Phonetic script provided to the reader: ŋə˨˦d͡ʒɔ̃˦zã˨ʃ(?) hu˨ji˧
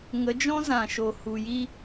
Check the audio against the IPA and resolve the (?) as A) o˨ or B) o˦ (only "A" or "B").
A